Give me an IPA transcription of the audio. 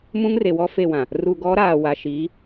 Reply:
m ũ˦ ŋ r e˨ w ɔ˦ f e˦˨ w ã˨ | r u˨ ɡ ɔ˨˦ ɾ aː˨ w a˨ ʃ iː˨˦

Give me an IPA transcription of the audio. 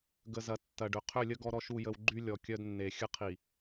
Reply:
ɡ ə˨ z ɐ˨ tː ɐ˨ ɖ ʏ˨ qʰ ʏ˦˨ lʲ ə˦ ɡ ɔ˦ ɾ ɔ˦ ʃ u˦˨ j ə˦ w ɡ͡ǃ y˦ lʲ ɔ˨ kʲ œ˦ d nː e˨ xʲ ə˦ qʰ i˨

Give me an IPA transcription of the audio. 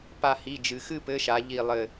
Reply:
p a˧˩ h i˩˧˩ d͡ʒ ɨ˩ x ɨ˥˨ p ɘ˨˥ ʃ a˩˧ ʎ i˧˩ lˠ ɘ˧˩

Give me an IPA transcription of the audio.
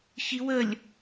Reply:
ç i w ə lʲ

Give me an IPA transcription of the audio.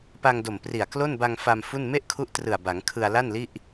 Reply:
p a˧ ŋ d o˨˩ m p r i˨˩ a̯ k l o˥˩ n b a˧ ŋ f a˧ m f u˥˩ n m e˥˩ ʔ kʰ u˦˥ ʔ t r ɯ˨˩ a̯ b a˩˦ ŋ kʰ ɯ˧ a̯ l a˥˩ n l i˥˩ ʔ

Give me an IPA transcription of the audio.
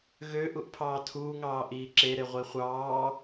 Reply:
ɣ ø ʔ u ʔ pʰ ɑː tʰ uː ŋ ɑː ʔ iː ǁ e ɾ e ʁʷ i χʷ ɑː

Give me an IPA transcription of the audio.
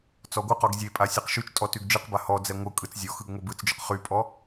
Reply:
t͡s ɔ ɡʷ ɯ q ɔ ɡ zʲ e pʼ a sʲ ɛ q ʃ y t͡ʃ tʼ ɔ t y ɡ d͡ʒ ɯ q b a h ɔ d͡z ɛ ŋʷ ɯ kʼ ɯ t͡s zʲ ɔ x ɯ ɡ ŋʷ ɛ b ɯ t͡s d͡ʒ ʊ q χ y pʼ ɔ

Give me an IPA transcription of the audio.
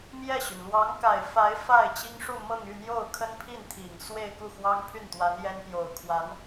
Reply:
m j ɛ˥˩ ɕ y˩ n l w ɑ˧˥ ŋ k a˨˩ ɪ̯ f a˧˥ ɪ̯ f a˥˩ ɪ̯ t͡ɕ i˥ ŋ ʂ u˥˧ m ɤ˥˧ ŋ y˥˧ n̪ j o˥˩ ʊ̯ kʰ ə˥ n pʰ i˥˩ n t̪ʰ i˨˩ ŋ s w e˥˧ ɪ̯ k u˥˩ x w ɑ˥ ŋ pʰ y˥˩ n t̪ w a˧˥ n j ɛ˥ n p j o˨˩ ʊ̯ kʰ w a˧˥ n

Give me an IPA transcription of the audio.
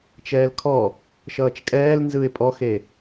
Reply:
t͡ʃ ɛː l kʰ ɔ | ʃ ʌː t͡ʃ kʼ ɛː l n z ɯ ɪ̯ pʼ ɔ x e

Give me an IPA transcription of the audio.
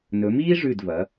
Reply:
n ɵ˩˧ m iː˥ ʐ ʉ˧˩ d v ɐ˩˧

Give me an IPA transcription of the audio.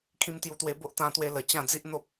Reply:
kʰ ĩ˧ m t̪ j u˧ t̪ w e˧ b o˦ ʔ t̪ ã˧ t̪ w e˧ l ə˨˩ t͡ɕ ã˥˧ d͡z i˦ ʔ n̪ o˦ p̚

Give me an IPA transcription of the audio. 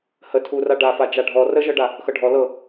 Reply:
h ə tʰ u r a ɖ a f a d͡ʒ a ɖʱ ɔ r ə ʒ ɤ ɖ a | x ɤ ɖʱ ɔ l ɤ

